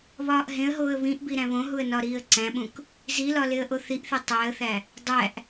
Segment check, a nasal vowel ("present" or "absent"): present